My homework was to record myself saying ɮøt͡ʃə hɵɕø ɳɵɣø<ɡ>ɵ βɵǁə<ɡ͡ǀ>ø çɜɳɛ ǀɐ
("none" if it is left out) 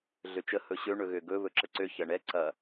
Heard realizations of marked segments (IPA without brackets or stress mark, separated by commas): ɡ, ǀ